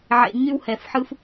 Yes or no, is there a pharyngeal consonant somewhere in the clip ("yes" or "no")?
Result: yes